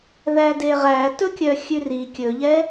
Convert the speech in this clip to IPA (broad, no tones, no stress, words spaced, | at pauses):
ðædeʁæ tɵkʲœxʲʉri kʲɵʎɛ